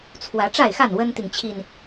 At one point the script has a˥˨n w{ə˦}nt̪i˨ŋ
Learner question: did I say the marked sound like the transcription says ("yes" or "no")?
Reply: yes